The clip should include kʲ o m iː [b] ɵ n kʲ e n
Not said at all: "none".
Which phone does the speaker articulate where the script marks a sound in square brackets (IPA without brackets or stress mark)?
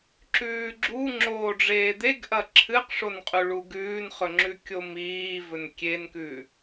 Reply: v